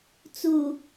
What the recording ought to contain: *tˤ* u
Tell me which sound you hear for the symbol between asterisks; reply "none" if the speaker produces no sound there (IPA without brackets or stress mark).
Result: t͡s